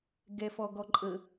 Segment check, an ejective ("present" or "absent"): present